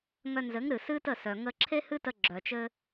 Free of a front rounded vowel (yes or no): no